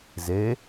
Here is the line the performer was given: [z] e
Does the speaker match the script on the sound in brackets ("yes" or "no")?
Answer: yes